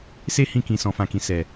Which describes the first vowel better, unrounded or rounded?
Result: unrounded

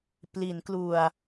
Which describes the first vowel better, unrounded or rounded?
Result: unrounded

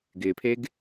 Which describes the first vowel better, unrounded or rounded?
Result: unrounded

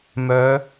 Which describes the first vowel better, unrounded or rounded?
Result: rounded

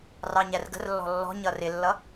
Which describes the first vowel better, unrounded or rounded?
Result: unrounded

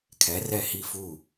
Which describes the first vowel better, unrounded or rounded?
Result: unrounded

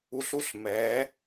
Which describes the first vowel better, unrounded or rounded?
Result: rounded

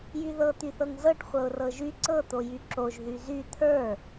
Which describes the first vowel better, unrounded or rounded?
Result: rounded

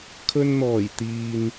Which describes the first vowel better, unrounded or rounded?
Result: rounded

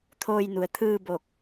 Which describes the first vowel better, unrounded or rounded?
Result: rounded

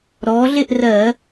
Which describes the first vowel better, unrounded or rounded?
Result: rounded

